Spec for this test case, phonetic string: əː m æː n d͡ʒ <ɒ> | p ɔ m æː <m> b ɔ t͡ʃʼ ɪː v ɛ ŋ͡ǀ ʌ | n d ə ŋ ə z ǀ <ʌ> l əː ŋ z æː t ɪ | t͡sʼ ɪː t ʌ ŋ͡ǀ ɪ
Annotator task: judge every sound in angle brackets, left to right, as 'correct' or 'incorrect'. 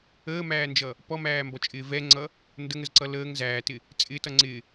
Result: incorrect: ʌ, correct, correct

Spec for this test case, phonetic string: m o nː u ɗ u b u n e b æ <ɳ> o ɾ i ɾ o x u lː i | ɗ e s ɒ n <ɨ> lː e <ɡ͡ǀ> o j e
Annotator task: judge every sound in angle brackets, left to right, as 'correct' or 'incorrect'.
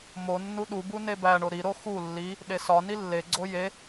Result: correct, incorrect: i, correct

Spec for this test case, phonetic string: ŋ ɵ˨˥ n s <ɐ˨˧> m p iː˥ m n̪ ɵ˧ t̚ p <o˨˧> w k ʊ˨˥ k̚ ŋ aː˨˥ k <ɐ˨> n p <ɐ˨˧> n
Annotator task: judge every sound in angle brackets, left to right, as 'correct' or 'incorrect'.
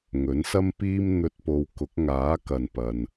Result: incorrect: ɐ˥, correct, correct, incorrect: ɐ˨

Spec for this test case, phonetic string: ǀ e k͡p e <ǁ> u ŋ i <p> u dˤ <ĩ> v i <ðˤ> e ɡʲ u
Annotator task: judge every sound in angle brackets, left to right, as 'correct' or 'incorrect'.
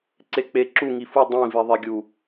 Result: correct, incorrect: f, correct, correct

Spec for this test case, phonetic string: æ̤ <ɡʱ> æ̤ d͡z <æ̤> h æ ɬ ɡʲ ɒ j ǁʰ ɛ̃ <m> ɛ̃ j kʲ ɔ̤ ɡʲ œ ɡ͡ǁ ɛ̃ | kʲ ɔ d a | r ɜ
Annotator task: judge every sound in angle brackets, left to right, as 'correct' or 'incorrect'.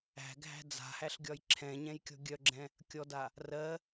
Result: correct, incorrect: a̤, incorrect: ɲ

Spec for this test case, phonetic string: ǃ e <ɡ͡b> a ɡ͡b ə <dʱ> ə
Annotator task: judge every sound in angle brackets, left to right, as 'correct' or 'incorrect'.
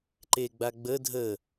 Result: correct, correct

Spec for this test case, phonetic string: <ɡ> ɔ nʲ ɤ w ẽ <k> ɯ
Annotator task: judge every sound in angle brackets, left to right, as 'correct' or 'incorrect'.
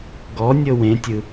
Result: correct, incorrect: tʲ

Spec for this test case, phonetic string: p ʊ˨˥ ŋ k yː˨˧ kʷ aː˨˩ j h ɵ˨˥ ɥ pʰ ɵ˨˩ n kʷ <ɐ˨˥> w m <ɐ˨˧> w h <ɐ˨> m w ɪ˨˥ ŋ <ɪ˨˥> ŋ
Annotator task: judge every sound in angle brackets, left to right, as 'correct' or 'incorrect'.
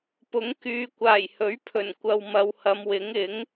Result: incorrect: ɐ˨, correct, incorrect: ɐ˨˧, correct

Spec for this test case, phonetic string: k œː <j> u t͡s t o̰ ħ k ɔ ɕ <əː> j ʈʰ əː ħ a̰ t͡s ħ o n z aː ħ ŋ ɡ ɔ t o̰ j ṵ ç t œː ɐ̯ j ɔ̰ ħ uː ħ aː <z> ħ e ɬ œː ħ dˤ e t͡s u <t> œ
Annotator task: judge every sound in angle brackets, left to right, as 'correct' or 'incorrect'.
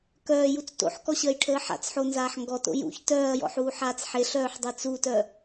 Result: correct, correct, incorrect: t͡s, correct

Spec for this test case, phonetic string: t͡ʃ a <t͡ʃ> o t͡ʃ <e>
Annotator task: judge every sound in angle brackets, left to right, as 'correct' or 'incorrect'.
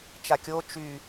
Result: incorrect: kʲ, incorrect: y

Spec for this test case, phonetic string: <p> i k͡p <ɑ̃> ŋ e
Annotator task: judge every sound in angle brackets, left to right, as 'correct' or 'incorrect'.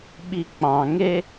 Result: incorrect: ɓ, correct

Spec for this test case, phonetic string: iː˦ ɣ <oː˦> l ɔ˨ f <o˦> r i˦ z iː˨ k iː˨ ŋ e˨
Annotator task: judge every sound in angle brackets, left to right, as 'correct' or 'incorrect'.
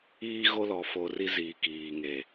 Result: incorrect: o˦, incorrect: o˨

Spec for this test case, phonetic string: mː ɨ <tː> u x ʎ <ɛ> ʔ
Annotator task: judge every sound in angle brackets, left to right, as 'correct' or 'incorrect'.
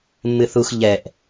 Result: incorrect: θ, correct

